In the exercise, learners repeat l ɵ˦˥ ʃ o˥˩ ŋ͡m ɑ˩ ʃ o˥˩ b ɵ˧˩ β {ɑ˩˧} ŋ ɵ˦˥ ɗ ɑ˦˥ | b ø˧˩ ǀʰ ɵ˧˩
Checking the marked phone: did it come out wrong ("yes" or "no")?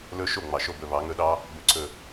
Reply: no